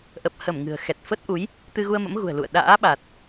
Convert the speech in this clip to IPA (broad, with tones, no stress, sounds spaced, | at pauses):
ʔ ə˨˩ p̚ h ə˧˩ m ŋ ɨ̤˨˩ ə̯ x ɛ˨˩ t̚ f ə˦˥ t̚ ʔ u˨˦ j | t̪ ɨ˧ ɣ u˧ ə̯ m ə̰˧˥ m ɣ ṳ˨˩ ə̯ l ṵ˧˨ ə̯ ɗ a̰ː˧˥ ɓ a˨˩ t̚